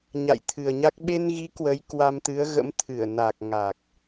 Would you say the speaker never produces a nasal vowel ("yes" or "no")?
yes